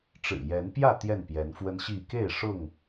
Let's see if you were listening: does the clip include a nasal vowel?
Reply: no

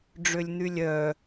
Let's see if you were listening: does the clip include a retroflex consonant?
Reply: yes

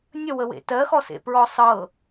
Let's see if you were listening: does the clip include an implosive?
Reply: no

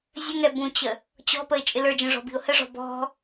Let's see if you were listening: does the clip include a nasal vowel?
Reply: yes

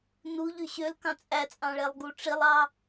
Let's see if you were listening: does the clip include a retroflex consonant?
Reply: yes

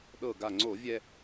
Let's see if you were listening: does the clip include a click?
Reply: yes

